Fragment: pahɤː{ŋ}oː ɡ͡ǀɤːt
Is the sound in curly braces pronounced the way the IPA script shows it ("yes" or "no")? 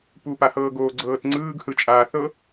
no